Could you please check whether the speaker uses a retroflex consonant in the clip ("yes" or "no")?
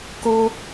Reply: no